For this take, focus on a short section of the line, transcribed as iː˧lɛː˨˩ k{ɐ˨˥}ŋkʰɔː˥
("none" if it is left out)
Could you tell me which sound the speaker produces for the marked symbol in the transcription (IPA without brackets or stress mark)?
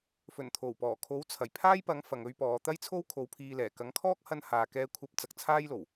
ɐ˨˥